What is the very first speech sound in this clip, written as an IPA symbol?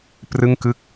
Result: p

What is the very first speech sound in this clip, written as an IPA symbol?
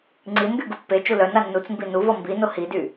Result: ŋ͡ǀ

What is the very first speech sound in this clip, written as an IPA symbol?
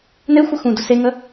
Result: n̪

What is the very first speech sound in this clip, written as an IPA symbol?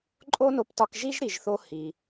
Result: ǃʼ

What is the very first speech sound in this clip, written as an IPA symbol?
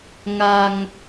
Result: ŋ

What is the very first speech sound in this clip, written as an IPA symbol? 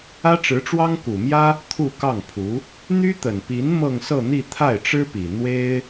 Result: ä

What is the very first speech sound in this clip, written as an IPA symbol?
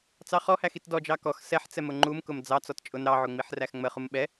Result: t͡s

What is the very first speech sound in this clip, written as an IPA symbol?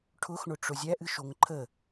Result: ʈʰ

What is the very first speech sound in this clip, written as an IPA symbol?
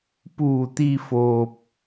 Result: p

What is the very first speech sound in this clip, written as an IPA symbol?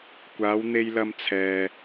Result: kʷ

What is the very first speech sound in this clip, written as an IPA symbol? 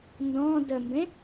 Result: n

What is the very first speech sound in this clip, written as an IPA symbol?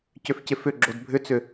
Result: c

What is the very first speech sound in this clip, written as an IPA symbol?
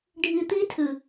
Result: ɖʱ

